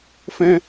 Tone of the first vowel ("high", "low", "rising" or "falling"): high